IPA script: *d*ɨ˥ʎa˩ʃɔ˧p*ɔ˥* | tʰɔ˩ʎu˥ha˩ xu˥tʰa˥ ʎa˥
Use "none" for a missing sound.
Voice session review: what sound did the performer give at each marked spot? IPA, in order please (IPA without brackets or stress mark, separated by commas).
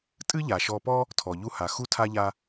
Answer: tʼ, ɔ˥